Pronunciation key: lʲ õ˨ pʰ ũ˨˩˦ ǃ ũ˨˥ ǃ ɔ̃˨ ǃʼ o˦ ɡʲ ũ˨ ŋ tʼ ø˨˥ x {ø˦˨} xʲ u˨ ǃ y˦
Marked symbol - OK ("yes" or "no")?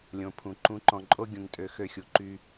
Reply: yes